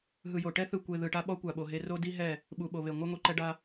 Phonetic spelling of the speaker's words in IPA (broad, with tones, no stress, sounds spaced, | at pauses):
ɦ ɯ˨ j o˨ ʈ ɛ˦ θ ɯ˨ kʷ e˨ ð ɯ˨ ʈ a˦ ɓ ɔ˦ kʷ a˨ ɓ o˨ ɦ e˦ r o˦ d i˦ ɦ ɛ˦˨ | ɓ u˨ ɓ o˨ β e˨ ŋʷ a˦ ŋʷ i˨ ǃ ɛ˦ ɖ a˦